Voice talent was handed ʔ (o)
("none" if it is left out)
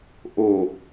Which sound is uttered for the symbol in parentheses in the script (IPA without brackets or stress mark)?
o